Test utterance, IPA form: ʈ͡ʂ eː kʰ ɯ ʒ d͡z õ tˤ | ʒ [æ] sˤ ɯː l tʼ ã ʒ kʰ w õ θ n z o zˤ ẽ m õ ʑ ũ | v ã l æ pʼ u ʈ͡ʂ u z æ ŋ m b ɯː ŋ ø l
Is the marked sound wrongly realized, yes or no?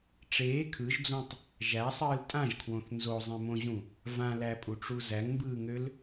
no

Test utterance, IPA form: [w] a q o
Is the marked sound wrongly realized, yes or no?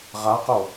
yes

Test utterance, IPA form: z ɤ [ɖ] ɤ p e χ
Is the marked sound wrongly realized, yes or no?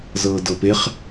yes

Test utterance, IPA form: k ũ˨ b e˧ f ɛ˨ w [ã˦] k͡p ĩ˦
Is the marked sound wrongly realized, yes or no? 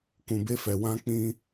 yes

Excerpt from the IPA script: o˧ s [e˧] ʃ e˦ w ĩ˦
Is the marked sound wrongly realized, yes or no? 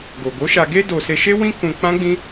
no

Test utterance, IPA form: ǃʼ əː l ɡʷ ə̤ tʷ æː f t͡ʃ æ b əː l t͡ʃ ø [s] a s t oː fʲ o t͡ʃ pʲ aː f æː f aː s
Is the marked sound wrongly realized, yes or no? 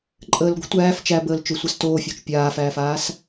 yes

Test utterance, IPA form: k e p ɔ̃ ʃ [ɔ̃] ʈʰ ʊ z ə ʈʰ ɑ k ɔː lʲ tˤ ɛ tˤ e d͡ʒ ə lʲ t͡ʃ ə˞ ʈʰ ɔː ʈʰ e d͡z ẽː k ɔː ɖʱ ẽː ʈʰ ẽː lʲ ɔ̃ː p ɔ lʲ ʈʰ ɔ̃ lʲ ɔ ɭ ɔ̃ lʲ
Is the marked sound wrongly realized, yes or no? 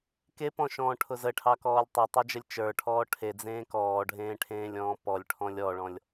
yes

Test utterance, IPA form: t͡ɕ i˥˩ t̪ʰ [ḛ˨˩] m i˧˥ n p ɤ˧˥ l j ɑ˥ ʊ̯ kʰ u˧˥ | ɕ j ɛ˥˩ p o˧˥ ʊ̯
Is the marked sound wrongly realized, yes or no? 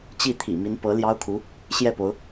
yes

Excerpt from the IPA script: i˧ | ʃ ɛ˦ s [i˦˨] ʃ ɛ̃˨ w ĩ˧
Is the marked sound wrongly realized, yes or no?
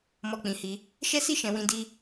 no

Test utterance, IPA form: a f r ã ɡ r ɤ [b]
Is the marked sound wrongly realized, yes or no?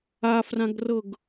yes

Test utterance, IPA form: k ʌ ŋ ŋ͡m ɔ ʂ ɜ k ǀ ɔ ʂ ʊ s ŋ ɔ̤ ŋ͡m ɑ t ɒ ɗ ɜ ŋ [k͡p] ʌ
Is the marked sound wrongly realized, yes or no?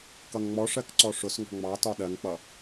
no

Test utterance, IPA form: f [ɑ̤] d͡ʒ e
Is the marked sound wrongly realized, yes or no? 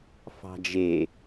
no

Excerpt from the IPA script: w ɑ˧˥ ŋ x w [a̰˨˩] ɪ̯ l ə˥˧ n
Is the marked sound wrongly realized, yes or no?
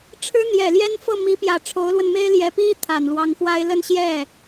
yes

